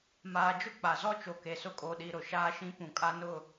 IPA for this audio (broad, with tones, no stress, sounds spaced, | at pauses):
m aː˨ d͡ʒ ʊ˦ k͡p a˨ z ɔ˦ t͡ʃ o˨ k e˨ s ʊ˦ kʼ oː˨ ɗ iː˨ ɾ ʊ˨ ʃ aː˦ ʃ ĩ˦ p ũ˨ kʼ a˦ n ʊ˦˨